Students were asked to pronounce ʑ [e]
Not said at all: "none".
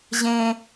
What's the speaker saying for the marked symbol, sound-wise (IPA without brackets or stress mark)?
ẽ